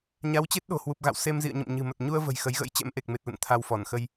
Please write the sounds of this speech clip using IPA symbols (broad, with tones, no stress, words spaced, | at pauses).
ɲa˨˦wt͡ɕe˦˥t̚ ɗo̤˨˩hwu˨˩p̚ɣa̰˧˨w se˧m zḭ˧˨ə̯ɲə̰˧˨m ɲɨ̤˨˩mə˨˩t̚ ɲu˧ə̯və̤˨˩j xə˨˦jɣə̰˧˥jt͡ɕɛ̰˧˥m ʔe˨˩k̚me˨˩t̚lə̰˧˨n t̪ʰa˧wfɔ˧˩nxə˧j